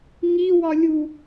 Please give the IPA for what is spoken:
ŋiwɒ lʲu

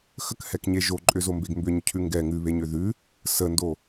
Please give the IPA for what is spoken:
xəkhɛkɲe ʒoǃʼʏzombeɡ mbʏɲʏ cʰʉŋɡɛ ŋʉβeɲʏ ðʉ | səndo

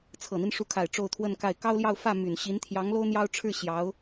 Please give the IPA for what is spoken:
t͡sʰɤ˨˩n̪i˦n ʂu˧˥kʰa˨˩ɪ̯ ʈ͡ʂo˥˧ʊ̯t̪ʰwə˥˧nka˥˩ɪ̯ kɑ˥ʊ̯ljɑ˥˧ʊ̯ fä˥˩ my˨˩nɕi˧˥n t̪ʰjɑ˧˥ŋlo˥ʊ̯n̪jɑ˥ʊ̯ʈ͡ʂʰɻ̩˥˩ ɕjɑ˧˥ʊ̯

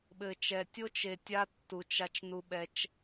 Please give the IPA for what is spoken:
ɓɘ˨t͡ʃɛ˨ tʲo˦t͡ʃe˨ tʲa˦tːu˨t͡ʃ a˦t͡ʃnu˦ɓɛ˦t͡ʃ

